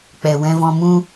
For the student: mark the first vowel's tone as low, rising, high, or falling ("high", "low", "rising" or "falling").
low